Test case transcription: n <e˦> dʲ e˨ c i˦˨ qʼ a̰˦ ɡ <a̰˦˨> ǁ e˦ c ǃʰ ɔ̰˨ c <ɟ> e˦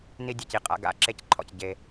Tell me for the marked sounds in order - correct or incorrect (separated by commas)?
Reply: incorrect, correct, correct